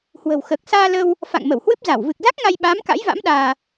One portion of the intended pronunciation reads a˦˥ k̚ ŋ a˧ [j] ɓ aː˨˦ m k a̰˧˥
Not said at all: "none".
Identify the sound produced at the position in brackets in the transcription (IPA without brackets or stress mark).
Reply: j